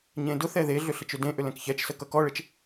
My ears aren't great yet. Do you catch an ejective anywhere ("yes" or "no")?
no